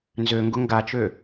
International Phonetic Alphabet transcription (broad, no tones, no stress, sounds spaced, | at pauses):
n z ø ŋ ɡ ʊ ŋ ɡ a t͡ʃ ø